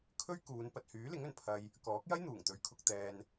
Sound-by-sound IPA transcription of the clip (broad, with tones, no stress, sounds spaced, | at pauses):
kʰ ɵ˥ ɥ k uː˨˧ n p ɐ˨ t̚ h yː˨˥ l ɪ˨˥ ŋ ɵ˨˩ n pʰ ɐ˧ j | k ɔː˨˥ k̚ j ɐ˥ j n̪ uː˨˩ ŋ t̪ ɵ˨˧ ɥ kʰ ʊ˧ k̚ t̪ ɛː˧ n